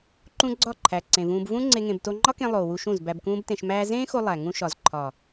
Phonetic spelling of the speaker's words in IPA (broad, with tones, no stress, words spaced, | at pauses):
ǃũ˦ɡ͡ǀɒ˦˨ǃʰæ˨ ǀẽ˨vũː˧b vũ˦ ŋ͡ǀe˦ŋẽ˧b to˧ŋ͡ǃɒ˦kẽ˧ lˠoː˨wu˧ʃũ˦˨z bæ˧bkũː˦btẽ˧ʃmæː˦ zẽː˦xo˧ lˠæ˨ ŋũ˧ʃɒ˨z ǃʰɒ˨